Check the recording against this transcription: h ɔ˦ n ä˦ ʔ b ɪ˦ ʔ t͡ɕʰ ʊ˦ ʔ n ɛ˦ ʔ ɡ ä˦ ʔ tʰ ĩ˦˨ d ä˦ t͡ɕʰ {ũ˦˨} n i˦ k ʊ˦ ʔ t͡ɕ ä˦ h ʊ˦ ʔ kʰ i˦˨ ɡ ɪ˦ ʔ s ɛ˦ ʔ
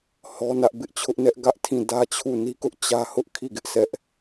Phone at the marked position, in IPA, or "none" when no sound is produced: u˦˨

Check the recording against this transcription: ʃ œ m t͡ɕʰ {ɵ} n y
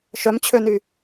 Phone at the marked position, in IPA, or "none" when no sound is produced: ø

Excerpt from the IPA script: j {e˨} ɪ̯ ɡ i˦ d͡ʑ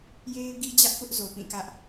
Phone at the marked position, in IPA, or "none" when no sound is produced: e˦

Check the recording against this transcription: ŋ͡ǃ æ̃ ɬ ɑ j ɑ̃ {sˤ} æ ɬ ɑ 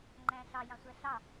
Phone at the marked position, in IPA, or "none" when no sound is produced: sʷ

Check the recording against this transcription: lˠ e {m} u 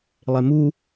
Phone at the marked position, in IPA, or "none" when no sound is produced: m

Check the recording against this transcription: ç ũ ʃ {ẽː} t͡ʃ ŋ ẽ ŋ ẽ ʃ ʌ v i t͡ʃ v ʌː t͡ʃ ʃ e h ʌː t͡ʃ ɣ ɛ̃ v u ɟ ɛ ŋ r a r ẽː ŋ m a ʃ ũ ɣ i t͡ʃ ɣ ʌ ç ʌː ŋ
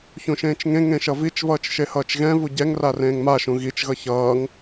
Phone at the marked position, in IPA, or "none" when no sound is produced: ẽː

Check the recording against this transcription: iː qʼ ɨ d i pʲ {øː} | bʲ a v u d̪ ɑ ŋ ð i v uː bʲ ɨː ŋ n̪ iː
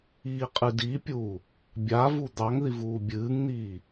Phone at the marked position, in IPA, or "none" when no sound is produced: uː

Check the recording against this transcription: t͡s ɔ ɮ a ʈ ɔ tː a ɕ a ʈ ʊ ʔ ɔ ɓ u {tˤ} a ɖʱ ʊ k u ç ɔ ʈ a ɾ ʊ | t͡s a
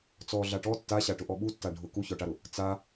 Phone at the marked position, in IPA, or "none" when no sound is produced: tː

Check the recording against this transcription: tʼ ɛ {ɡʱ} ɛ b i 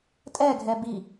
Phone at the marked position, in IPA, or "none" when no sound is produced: ɡʱ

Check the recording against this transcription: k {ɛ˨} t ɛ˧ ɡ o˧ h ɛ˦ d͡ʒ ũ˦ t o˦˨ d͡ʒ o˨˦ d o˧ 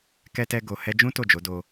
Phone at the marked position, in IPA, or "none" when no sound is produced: ɛ˧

